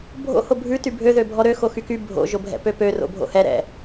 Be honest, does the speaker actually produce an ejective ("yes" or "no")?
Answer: no